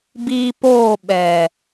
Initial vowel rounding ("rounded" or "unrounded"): unrounded